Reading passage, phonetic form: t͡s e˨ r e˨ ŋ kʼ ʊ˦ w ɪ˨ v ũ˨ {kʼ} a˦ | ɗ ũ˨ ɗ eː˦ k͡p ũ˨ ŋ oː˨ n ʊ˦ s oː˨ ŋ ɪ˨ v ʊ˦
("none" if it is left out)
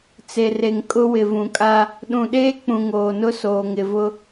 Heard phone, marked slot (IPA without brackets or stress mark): kʼ